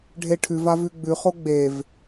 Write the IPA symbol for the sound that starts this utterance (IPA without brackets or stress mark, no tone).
ɖʱ